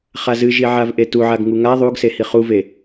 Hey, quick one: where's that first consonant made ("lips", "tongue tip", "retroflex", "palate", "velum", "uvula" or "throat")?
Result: uvula